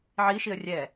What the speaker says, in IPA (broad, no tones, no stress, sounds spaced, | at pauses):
ʕ i ʃ i ə̯ rʲ ɛ